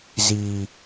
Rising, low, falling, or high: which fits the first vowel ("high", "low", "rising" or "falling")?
low